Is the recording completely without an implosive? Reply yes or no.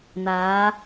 yes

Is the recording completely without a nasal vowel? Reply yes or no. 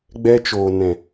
no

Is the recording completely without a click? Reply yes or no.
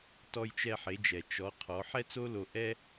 yes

